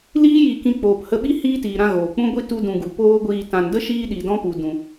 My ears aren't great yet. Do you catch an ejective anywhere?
no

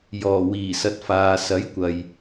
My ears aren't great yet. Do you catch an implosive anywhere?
no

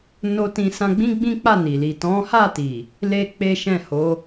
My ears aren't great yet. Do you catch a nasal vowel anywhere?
yes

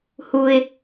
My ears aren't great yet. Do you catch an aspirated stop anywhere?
no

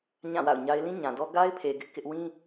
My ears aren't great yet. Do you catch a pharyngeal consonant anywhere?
no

